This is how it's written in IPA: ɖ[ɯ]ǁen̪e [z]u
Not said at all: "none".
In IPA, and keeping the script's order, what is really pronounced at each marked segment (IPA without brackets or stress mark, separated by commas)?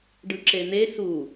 ɯ, s